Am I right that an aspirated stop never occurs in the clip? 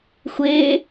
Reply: yes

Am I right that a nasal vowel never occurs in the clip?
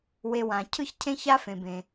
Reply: no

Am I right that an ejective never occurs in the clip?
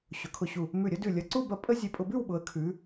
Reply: no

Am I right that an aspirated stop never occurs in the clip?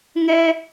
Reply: yes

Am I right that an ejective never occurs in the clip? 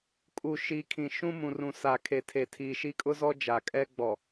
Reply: no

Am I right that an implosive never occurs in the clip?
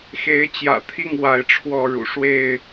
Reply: yes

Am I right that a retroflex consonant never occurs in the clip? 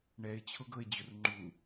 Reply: no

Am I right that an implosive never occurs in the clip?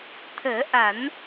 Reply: yes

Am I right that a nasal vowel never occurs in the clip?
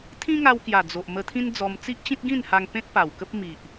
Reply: no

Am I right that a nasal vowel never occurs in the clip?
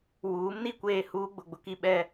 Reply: yes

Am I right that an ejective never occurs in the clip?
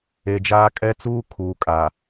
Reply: no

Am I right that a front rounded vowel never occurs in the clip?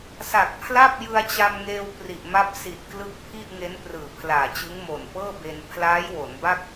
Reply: yes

